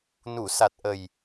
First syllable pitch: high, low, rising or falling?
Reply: low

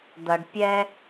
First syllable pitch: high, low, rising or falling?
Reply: low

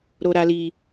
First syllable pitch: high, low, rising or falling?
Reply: high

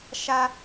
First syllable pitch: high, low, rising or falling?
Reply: high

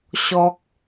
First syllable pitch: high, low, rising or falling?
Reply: high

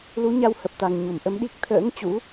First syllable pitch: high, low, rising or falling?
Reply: rising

